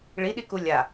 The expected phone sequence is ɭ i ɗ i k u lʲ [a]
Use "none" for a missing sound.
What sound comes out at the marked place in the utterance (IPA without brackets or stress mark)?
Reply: a